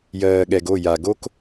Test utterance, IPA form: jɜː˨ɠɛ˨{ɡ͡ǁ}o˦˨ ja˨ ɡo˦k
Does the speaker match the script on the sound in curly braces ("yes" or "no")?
no